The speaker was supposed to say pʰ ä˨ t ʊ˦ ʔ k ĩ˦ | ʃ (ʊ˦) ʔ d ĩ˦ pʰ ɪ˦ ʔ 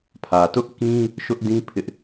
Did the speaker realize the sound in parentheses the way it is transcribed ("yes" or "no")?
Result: yes